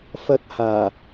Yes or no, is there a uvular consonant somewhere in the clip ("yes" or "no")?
no